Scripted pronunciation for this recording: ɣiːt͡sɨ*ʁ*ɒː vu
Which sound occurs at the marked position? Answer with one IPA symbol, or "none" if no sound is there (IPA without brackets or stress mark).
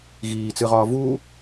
ʁ